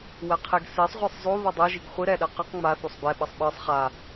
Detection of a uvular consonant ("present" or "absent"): present